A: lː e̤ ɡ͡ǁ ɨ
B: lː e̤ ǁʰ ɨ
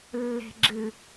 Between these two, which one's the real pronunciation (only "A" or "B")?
A